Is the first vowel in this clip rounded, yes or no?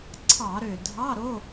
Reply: no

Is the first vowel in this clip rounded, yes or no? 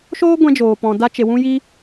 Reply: yes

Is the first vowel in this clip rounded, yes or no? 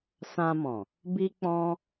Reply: no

